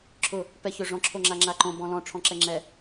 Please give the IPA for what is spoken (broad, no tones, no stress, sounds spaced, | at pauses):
ǁʰ ʊ | p ɛ ç ø ʐ ɔ̃ ǁʰ o ŋ͡ǁ a ŋ͡ǁ a ǃ õ b ɔ̃ l ɔ̃ ʈ͡ʂʰ ɔ̃ ǁ ɛ ŋ͡ǁ ɛ